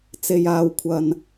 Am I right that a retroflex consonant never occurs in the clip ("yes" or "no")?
yes